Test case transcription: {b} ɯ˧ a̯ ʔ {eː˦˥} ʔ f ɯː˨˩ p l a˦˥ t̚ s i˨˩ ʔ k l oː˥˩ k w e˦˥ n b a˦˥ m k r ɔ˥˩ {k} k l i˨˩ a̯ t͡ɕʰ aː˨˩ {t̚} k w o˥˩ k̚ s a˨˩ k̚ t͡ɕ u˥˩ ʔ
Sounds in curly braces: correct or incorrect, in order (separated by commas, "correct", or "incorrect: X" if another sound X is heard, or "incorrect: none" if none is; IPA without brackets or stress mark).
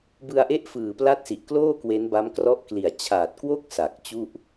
correct, incorrect: e˦˥, incorrect: ʔ, correct